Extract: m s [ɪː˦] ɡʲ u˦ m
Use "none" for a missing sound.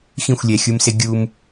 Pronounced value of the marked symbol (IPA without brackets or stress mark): ɪ˦